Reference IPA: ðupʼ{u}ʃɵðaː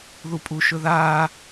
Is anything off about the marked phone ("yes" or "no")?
no